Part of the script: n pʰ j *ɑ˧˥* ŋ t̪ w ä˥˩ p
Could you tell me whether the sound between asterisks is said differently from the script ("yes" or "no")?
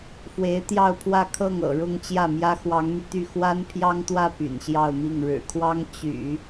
yes